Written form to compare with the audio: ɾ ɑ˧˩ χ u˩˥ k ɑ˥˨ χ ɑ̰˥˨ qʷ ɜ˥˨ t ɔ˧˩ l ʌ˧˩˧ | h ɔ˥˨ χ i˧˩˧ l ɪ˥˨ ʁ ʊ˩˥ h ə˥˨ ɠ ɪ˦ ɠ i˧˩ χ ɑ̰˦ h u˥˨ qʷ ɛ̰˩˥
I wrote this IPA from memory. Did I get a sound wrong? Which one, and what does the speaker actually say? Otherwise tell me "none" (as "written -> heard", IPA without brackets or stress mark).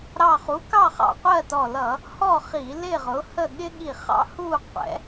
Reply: none